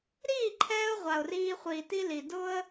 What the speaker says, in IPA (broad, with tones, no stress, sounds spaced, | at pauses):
ɾ iː˦˨ ǃʰ ɛː˧ ʊ̯ ʁʷ a˨ ʊ̯ r iː˧ χʷ iː˨ t i˦ l i˨ d ʊ˦ ə̯